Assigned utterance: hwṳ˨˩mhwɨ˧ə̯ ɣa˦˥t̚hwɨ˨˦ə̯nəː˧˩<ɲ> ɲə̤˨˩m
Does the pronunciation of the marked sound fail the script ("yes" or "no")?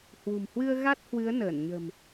yes